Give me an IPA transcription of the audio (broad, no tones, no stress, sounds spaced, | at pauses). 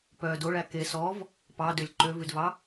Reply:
p œ d o ɭ æ k e s ɔ v | p ɑ d ø lʲ ǃ ø v ʉ d v ɑ